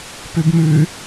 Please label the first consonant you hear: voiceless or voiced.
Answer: voiceless